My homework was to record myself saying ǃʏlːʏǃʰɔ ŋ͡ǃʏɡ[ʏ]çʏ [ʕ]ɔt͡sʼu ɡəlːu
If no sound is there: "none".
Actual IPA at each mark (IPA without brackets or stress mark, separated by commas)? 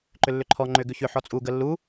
ʏ, ħ